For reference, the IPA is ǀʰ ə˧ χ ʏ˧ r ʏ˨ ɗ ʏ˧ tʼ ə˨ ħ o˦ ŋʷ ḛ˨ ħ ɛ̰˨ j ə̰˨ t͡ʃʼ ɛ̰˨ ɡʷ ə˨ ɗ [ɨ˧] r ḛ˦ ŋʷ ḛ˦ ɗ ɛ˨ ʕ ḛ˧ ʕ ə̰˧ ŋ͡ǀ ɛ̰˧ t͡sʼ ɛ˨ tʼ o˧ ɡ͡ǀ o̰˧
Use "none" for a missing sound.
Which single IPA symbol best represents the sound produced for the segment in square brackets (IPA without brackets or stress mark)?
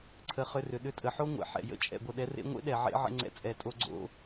ɛ˧